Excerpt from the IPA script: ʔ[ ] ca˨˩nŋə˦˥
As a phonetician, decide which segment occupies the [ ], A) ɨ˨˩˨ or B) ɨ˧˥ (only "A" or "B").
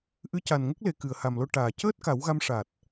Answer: B